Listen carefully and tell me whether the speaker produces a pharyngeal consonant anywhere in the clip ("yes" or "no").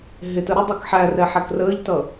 yes